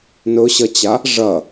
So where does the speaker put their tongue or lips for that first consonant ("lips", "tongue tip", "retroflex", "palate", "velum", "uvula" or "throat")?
tongue tip